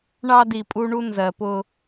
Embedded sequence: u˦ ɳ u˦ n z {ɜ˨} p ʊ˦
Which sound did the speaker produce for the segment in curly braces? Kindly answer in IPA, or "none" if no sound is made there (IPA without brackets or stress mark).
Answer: ɜ˨